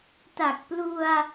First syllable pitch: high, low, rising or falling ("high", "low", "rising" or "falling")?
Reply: low